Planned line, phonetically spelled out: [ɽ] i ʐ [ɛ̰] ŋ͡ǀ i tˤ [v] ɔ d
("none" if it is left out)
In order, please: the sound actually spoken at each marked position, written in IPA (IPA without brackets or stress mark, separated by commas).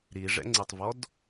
ɾ, ɛ̰, v